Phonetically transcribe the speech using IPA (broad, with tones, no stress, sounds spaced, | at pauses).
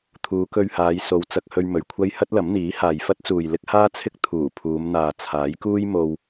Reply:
t̪ʰ uː˨˧ k ɵ˧ ɥ h aː˨˧ j s o˨˧ w t͡s ɐ˧ k̚ h ɵ˧ ɥ m ɵ˨ ɥ kʷʰ ɐ˥ j h ɐ˥ t̚ l ɐ˨˥ m n̪ iː˨˥ h aː˨ j f ɐ˥ t̚ t͡s uː˨ j l ɪ˥ k̚ h aː˥ t͡sʰ ɪ˥ k̚ t̪ʰ uː˨˩ pʰ uː˨˧ m n̪ aː˨ t͡sʰ aː˨˥ j k uː˥ j m o˧ w